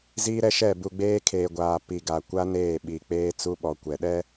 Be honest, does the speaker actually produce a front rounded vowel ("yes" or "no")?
no